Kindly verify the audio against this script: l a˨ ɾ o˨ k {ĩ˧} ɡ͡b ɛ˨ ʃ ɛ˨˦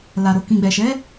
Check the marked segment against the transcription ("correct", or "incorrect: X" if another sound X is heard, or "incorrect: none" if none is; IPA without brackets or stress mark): incorrect: ĩ˨